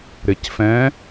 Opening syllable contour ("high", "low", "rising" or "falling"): low